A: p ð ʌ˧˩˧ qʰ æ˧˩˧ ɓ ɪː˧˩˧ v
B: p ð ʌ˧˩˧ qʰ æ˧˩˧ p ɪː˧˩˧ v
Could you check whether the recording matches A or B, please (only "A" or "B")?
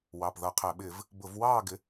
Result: A